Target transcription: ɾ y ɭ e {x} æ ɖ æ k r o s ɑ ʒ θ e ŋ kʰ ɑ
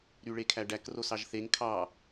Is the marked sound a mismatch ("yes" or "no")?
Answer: yes